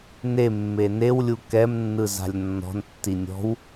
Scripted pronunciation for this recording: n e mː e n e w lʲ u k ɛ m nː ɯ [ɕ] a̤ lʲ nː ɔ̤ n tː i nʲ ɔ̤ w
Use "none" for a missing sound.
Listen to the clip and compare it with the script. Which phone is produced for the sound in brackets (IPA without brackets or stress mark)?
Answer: z